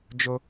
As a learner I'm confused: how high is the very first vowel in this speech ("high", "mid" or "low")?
mid